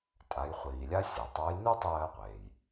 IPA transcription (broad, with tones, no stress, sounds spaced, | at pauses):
tʼ a˩˧ j χʷ iː˩ lʲ a˥ sʲ e˩ tˤ ə˞˧˥ j n u˥ tˤ ɜː˧ qʷ eː˩ j